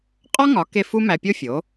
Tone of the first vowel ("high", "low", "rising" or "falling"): high